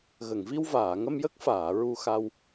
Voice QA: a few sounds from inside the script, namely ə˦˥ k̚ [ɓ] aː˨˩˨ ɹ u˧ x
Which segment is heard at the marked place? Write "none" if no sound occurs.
f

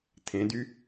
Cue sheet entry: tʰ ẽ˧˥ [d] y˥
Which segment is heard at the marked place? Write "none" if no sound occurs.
d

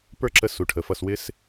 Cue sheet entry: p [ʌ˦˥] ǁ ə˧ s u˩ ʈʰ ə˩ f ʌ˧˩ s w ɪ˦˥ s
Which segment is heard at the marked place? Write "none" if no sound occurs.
ə˞˦˥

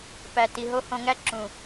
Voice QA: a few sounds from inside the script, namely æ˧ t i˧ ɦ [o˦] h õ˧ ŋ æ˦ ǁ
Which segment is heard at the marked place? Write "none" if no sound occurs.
o˦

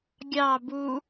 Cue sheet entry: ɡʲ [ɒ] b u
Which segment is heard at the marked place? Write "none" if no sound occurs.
ɑ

